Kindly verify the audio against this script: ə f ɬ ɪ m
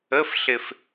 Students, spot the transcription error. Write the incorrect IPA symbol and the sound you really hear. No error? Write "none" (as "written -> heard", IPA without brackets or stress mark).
m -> f